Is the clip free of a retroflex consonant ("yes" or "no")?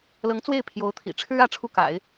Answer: no